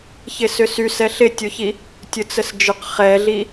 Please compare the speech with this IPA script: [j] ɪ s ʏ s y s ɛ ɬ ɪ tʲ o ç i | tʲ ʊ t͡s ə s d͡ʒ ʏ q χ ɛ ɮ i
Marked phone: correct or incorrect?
incorrect